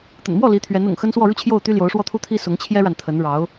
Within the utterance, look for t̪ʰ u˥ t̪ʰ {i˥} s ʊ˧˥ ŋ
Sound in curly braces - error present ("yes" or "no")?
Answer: no